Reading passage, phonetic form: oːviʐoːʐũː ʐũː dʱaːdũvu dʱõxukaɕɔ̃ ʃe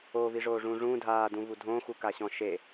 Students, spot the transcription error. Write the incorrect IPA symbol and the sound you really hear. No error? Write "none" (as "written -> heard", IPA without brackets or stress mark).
none